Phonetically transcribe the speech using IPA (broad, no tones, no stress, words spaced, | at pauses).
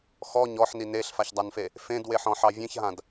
xɔ ɲɔħni neɬfaçdˤanfe | fẽdweħɔ̃ħɑ vʲẽçɦãd